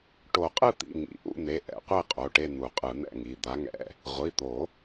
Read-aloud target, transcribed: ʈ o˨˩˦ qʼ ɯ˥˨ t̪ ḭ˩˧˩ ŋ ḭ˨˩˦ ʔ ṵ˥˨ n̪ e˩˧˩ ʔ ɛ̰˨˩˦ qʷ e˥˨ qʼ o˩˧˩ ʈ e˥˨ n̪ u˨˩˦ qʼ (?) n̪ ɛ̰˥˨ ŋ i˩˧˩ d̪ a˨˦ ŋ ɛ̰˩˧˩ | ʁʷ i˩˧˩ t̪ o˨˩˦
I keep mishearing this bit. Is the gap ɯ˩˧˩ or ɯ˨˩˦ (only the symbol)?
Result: ɯ˨˩˦